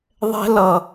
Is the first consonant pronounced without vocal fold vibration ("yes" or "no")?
no